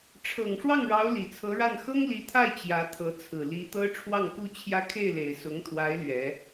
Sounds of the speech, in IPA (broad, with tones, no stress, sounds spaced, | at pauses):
ʈ͡ʂʰ ɤ˨˩ ŋ ʂ w ɑ˥˩ ŋ ɻ ɑ˧˥ ʊ̯ l i˨˩ t͡sʰ ɤ˧˥ ɻ a˥˩ n x ɤ˥ ŋ l i˧˥ t̪ʰ a˥˩ ɪ̯ t͡ɕ j ä˧˥ t̪ʰ ɤ˧˥ t͡sʰ ɹ̩˨˩ l i˧˥ t̪ ɤ˥ ʈ͡ʂʰ w ɑ˥˩ ŋ k u˥ t͡ɕʰ j ä˥˧ kʰ e˥˩ ɪ̯ l e˨˩ ɪ̯ s ʊ˧˥ ŋ t̪ʰ w a˧˥ ɪ̯ l ɥ ɛ˧˥